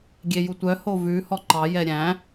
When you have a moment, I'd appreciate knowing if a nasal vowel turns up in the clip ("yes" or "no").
yes